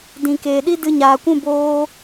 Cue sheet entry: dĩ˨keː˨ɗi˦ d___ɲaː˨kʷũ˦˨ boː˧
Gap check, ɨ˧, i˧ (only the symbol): ɨ˧